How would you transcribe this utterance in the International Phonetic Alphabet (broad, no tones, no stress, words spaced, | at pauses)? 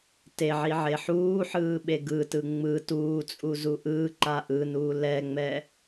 teʕi ʕeħuːħɯː ɓeɡɯtɯ ŋ͡mɯ tuːt͡sʼu zuʔɯːǃa ʔɯnuː lɛŋ͡mɛ